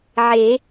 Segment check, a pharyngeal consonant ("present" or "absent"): present